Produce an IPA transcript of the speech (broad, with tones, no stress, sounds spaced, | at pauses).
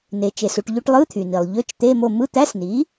n e˩ t͡ʃ e˩ s u˩ ʈ ʎ y˧˥˧ ʈ lˠ ɯ˧˥˧ t̪ʰ y˩ n i˩ lˠ ʎ ø˧˥˧ t͡ʃ t̪ e˧˥˧ m o˦˨ m ɯ˧˥˧ t̪ æ˧˥˧ s n i˩˥